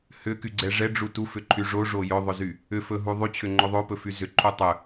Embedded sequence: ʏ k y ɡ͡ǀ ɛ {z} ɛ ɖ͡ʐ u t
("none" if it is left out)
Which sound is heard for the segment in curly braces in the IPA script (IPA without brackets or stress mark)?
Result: ʐ